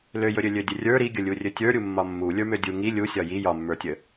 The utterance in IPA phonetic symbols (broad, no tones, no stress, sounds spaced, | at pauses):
l ø j ɵ ɾʲ ø lʲ ø dʲ ə rʲ ə˞ ɾ i ɡʲ ə lʲ u rʲ ɵ tʲ ə˞ ɾʲ u mː ɒ mː u lʲ ə˞ m ø dʲ u ŋ i lʲ u sʲ ɒ j i j ɒ mː ə˞ tʲ ə